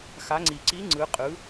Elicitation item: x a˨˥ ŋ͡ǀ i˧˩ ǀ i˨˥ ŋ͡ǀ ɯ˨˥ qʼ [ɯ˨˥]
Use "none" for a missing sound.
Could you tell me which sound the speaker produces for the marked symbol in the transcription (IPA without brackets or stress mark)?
ɯ˨˥